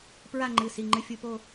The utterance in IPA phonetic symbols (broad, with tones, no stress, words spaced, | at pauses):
pɹa˥˧ŋ͡ǃɨ˩˧˩ si˩˧˩ŋ͡ǃɨ˨˦ fʲu˩˧˩po˥˧